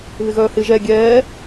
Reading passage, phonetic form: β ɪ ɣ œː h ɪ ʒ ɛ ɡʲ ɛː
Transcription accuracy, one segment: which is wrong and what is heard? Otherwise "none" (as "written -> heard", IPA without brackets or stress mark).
none